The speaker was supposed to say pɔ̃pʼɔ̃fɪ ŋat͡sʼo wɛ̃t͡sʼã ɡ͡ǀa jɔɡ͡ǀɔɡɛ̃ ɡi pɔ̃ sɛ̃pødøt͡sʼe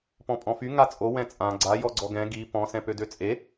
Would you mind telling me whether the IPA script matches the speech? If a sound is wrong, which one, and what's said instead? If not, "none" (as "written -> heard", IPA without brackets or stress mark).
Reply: ɪ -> y